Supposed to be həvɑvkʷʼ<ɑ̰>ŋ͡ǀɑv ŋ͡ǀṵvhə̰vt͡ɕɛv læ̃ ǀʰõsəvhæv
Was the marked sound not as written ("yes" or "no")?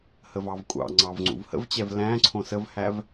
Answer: no